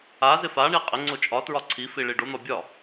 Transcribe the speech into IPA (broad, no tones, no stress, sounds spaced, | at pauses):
a z ɪ f a ɳ i qʼ ɪ ŋ͡ǀ o t͡ʃʼ ɒ t ɹ ɒ ǀʰ i f i ɭ i ɖ o n̪ ɒ bʲ ɒ